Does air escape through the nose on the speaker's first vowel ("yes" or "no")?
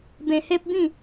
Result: yes